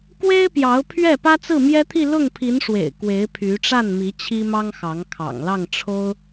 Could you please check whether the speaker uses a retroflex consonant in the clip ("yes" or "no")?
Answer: yes